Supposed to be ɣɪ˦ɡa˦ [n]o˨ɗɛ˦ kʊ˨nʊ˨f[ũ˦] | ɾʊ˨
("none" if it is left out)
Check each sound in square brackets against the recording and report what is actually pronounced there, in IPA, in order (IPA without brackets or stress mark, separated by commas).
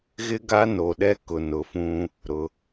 n, ũ˦